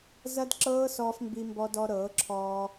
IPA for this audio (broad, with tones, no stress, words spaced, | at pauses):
zɐ˦dǁɤː˦ sɔː˦fmbi˦mbɔ˦ dɔ˧ɾɤː˨˦ǁʰɔː˧